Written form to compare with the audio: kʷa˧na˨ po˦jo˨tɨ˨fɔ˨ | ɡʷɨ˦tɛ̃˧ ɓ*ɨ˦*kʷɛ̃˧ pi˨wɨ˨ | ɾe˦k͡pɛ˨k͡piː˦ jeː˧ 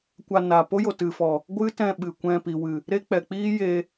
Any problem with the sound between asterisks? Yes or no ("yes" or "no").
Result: yes